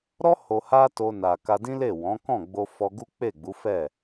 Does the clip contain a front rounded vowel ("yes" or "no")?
no